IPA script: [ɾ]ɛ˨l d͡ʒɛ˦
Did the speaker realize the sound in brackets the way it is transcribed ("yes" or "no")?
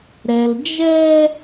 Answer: yes